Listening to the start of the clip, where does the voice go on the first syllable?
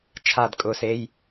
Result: falling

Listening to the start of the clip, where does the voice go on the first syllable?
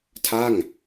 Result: falling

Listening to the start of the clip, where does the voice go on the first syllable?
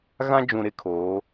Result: high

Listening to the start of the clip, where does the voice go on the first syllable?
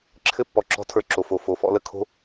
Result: high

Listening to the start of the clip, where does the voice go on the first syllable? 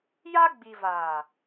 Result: high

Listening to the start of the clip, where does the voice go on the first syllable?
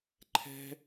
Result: high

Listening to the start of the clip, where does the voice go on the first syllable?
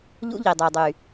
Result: high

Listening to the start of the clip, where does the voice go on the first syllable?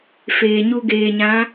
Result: low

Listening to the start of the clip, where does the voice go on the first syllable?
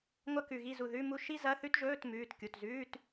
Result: falling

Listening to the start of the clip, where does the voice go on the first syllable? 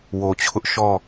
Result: low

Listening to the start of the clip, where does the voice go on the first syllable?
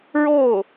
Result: falling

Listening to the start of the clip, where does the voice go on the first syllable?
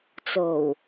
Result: low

